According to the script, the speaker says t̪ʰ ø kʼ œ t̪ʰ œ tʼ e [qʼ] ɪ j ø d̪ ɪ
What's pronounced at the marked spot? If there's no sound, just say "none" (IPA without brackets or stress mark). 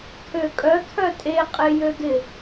qʼ